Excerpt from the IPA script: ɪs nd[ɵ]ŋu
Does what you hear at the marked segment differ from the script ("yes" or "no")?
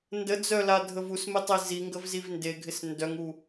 yes